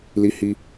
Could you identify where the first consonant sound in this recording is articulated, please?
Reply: alveolar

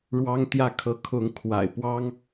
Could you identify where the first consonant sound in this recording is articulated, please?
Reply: retroflex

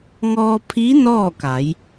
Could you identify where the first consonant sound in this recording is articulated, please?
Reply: velar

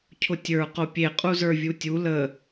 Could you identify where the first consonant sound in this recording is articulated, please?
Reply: palatal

